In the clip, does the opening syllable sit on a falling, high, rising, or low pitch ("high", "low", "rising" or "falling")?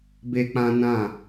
high